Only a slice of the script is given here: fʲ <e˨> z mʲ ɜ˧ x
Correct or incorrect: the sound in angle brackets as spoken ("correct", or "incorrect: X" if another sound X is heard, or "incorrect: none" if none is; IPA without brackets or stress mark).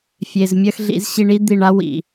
correct